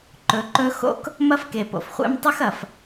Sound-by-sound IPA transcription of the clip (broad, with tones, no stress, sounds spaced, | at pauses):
ǃ ɵ˨˦ ǃ ɵ˦ x o̰˦ k | m ɐ˦ f k e˨ p o̰˨ f χʷ ḛ˦ m tˤ ɵ˦ x ɐ˨ f